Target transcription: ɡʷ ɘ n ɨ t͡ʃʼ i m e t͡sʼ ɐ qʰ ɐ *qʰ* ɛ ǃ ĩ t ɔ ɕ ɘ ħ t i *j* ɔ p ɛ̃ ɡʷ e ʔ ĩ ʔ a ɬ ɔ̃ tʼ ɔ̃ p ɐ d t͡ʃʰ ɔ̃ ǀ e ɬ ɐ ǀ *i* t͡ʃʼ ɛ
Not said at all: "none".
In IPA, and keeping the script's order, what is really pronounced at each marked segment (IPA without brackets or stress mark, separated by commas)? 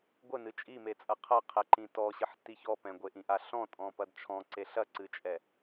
qʰ, ç, ɨ